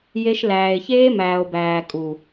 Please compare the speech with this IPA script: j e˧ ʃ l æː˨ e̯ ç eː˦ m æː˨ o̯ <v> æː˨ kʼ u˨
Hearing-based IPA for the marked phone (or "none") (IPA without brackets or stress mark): b